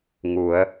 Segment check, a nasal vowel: absent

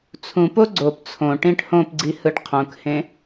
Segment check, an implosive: absent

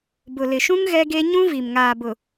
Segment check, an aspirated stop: absent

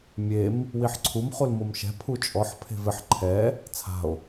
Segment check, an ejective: present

